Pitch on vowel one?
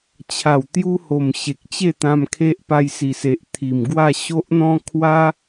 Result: low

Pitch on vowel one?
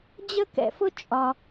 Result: high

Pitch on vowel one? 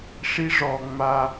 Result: high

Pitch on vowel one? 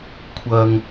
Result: low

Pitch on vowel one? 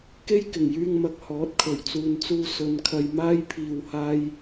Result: high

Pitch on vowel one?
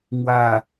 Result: low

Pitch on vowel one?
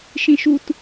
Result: high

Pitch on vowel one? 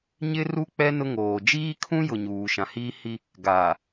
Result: high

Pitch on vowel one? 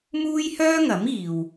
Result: high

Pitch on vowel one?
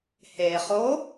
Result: low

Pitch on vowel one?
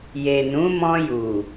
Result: low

